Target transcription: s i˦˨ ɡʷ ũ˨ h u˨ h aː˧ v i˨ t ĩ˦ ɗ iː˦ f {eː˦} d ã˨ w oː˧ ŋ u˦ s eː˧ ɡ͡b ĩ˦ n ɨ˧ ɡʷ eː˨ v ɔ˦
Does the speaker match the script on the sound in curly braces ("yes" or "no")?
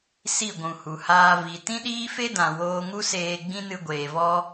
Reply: no